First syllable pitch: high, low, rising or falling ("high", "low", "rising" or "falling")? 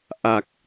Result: low